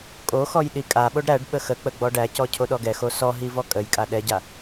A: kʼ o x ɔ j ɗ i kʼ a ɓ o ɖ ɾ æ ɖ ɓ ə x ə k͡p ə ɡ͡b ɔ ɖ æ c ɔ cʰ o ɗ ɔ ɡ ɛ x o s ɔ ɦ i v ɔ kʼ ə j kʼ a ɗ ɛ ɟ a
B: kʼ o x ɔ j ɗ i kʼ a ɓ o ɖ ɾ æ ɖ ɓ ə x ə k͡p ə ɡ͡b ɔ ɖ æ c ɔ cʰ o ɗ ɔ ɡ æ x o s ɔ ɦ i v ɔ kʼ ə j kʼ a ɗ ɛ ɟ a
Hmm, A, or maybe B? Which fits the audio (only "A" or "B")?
A